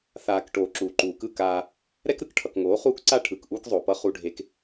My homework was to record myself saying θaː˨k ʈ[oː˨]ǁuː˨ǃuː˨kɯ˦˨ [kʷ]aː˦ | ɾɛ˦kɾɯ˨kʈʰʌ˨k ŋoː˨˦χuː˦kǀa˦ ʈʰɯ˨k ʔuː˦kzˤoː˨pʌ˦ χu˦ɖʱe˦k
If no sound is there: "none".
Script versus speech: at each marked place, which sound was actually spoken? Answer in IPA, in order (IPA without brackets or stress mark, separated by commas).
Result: oː˨, k